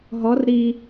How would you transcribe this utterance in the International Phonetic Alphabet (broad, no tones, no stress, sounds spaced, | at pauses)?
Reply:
ɦ ɔ r ɾ i